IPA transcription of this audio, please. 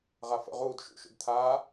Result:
ʁ a f ə̰ ʁ uː d ʃ ṵ ʃ ṵ d t̪ʰ aː

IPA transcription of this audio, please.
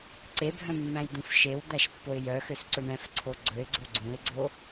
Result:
ǀ e bʱ œ̃ mː æ̃ j d̪ ũ f ʃ e w d̪ æ ʃ pː o ɪ̯ j œ x ø s ǀ ɵ ɳ ɛ̃ f ǀʰ o ɡ͡ǀ ɵ ɪ̯ ɡ͡ǀ o ɡ͡ǀ ũ ɪ̯ ɡ͡ǀ o

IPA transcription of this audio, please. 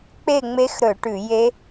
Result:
k͡p e˥˨ ŋ͡m e˦˥ x ɾ ɵ˧˩˧ ʈ ʉ˧˩˧ j e˦˥

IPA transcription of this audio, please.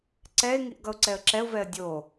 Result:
ǀ ɛ ɪ̯ ŋ i ʔ ɡ ʌ ʊ̯ ǀ ɛ ə̯ ǁ ɛ ʊ̯ v ɛ ə̯ dʲ o

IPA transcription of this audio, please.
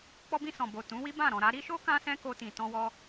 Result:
k͡p ɔ˧ b ĩ˧ s ɔ̃˨ b o˨ t ũ˨˦ w i˦ b ã˦˨ ɾ ɔ̃˨ ɾ a˧ ɾ i˦ ʃ o˦ k ã˦ s ɛ̃˦ k o˧ t ĩ˨ t ɔ̃˧ w ɔ˧

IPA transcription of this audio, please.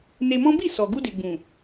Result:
n e˧ m ɔ̃˦ b i˦˨ s ɔ˨ ɡ u˧ d e˨ ɡ͡b ũ˨

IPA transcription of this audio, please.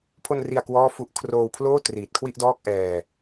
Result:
pʰ o˧ n r i˨˩ a̯ k w ɔː˥˩ f u˦˥ ʔ kʰ r oː˧ w pʰ l oː˥˩ t r iː˨˩ t̚ kʰ w i˥˩ ʔ d ɔː˥˩ k̚ ʔ ɛː˧

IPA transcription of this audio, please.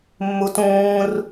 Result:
mː u t ũː r

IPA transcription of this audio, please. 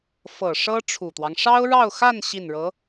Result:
f ɤ˨˩ ʂ ɤ˥ ʈ͡ʂʰ u˨˩ t̪ w ɑ˦ ŋ ʂ ɑ˥ ʊ̯ ɻ ɑ˥˧ ʊ̯ x a˥˧ n ɕ i˥˩ n ɻ ɤ˧˥

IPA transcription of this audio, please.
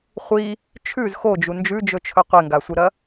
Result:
χʷ i | t͡ʃʰ ʉ z x o d͡ʒ u n d͡ʒ ʉ d͡ʒ ɵ t͡ʃʰ ɵ qʷ e ŋ ɡ a sʷ ɨ ɾ ɐ

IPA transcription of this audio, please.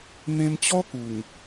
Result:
n̪ ẽ˧ m t͡ɕ ɔ˦ k u˨˩ ŋ

